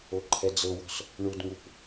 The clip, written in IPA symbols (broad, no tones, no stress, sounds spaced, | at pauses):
o ǃʰ ɛ d͡z ɤ w ɔ̤ s | ɳ u d ŋ u p